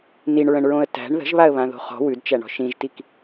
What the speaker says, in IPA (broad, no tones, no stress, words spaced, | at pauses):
niɳɹə̃ɳɹõə̯ tæ̤ɳ ðə̤ʒβaə̯βãðo̤ χɔ̤ wʉdt͡ʃæɳɔ̤ ʃĩʒtik